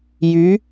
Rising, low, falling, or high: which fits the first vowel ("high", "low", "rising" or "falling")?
rising